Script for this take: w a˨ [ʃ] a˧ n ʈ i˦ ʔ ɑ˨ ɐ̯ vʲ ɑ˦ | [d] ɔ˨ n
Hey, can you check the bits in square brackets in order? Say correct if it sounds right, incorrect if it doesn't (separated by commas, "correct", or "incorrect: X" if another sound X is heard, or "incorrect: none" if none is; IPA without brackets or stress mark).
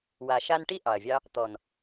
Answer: correct, incorrect: t̪